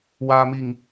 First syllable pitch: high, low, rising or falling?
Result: low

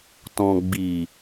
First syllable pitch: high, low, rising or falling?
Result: low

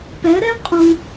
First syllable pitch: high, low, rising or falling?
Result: rising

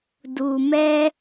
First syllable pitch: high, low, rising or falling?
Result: low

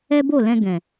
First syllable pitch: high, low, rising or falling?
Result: high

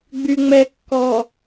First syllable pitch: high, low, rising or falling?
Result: low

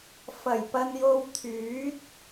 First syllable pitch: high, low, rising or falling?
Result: low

